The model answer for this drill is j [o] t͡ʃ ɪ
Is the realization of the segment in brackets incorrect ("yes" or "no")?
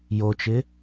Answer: no